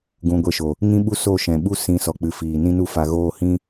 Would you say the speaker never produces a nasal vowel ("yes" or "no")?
no